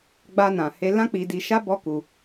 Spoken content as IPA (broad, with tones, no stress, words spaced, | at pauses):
ɡ͡ba˦nã˧he˦ lã˦k͡pi˧di˧ʃa˦ bɔ˦ku˧